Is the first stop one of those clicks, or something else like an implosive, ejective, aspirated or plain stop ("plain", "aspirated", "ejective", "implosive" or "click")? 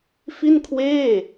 aspirated